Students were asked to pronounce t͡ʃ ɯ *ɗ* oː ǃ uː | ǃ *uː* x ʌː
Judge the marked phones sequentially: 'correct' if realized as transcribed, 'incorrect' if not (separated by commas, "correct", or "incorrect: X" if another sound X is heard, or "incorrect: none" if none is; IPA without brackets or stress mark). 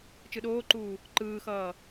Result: correct, incorrect: ɯː